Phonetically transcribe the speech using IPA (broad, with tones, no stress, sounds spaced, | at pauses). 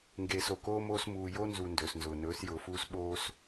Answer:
ŋ ɡ eː˨ s o˨ k oː˦ m oː˦ s m uː˨ j o˦ n z u˨ n d ɵː˨ s n z ʊː˨ n ɵː˨˦ s j ʊː˨ f uː˦ s ɓ oː˦ s